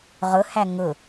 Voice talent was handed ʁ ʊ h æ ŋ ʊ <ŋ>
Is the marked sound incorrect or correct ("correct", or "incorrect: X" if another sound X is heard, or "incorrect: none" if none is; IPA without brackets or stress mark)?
incorrect: none